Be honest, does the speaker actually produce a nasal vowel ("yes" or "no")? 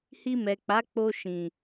yes